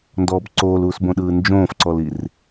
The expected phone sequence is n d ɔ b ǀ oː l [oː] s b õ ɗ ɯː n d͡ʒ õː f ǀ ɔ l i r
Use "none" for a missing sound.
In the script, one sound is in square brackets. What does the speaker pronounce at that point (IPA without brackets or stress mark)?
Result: uː